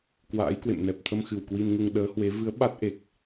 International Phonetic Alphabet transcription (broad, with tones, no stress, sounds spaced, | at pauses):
k w a̰ː˧˥ j k w ḛ˧˨ m n ɛ˨˩ p̚ t̪ʰ ə˧ m x ɨ˧˩ w k w i˧ n ŋ u˧ ŋ ɗ əː˨˦ h w e˨˦ v ɨ˨˦ ə̯ ɓ a˦˥ t̚ ʔ e˨˩ k̚